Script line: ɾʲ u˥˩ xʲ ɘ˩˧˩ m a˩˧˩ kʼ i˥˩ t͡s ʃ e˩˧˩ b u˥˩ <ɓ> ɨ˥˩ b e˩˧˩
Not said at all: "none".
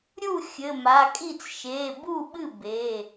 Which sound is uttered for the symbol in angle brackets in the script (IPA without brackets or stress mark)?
ɓ